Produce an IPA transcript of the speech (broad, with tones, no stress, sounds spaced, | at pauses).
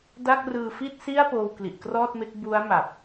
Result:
d a˥˩ k̚ r ɯː˧ f i˥˩ t̚ s i˥˩ a̯ p oː˧ w k l i˨˩ ʔ k r ɔː˥˩ t̚ m e˦˥ k̚ b u˦˥ a̯ m a˨˩ p̚